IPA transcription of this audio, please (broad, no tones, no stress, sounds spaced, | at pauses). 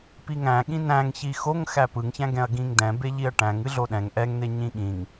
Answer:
p i ŋ æ̃ ɠ ĩ n æ̃ ŋ ç i x o ŋ x æ p ɯ ŋ ç æ̃ ɡ ɛ̃ ɐ̯ ɡ ĩ ŋ d ɛ̃ b e ʎ i ɐ̯ ʈ æ̃ ŋ ɨ ɮ o ɗ ɛ̃ ŋ ʔ ɛ ŋ n̪ e ɲ ĩ ɠ ĩ ŋ